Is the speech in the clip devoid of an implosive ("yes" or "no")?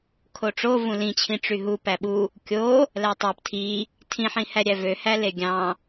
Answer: no